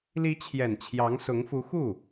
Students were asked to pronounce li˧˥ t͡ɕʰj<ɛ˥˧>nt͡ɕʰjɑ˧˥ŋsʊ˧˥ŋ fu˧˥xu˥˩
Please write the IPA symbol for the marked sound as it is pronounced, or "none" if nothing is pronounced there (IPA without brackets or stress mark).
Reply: ɛ˨˩